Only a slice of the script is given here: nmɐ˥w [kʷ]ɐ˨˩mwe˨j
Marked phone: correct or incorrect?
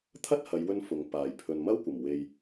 correct